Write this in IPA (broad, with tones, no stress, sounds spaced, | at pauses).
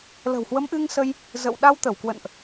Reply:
l ə̤˨˩ w h w ə˨˦ m ʔ ɨ˧ ŋ s ə˧ j | z ə̰˧˨ w ɗ a˧ w t̪ ə˧˩ w k w ə̰˧˨ n ʔ